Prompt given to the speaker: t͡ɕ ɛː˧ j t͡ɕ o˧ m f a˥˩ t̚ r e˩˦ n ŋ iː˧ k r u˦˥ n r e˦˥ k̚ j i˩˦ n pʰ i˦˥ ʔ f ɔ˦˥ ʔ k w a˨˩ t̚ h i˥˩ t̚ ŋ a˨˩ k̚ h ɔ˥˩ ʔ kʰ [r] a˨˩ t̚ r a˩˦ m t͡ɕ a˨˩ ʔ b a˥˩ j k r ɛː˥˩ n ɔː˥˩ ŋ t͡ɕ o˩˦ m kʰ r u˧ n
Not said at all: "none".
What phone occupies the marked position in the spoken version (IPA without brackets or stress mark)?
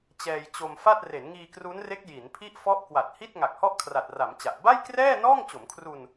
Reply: r